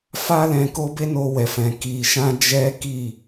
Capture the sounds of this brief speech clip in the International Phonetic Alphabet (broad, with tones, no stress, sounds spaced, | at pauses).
f a˦ l ɛ̃˧ k o˦ b e˦ n o˧ w ɛ˨ f ɛ̃˨ k i˨ ʃ ã˧ d͡ʒ ɛ˦ k i˦˨